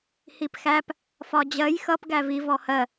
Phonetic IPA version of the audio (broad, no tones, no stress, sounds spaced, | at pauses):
h i p x æ p | f ɒ d͡ʑ ɜ j x ʌ p ɡ æ v i v ɔ h ɜ